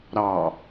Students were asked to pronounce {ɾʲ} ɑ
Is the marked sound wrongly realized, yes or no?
yes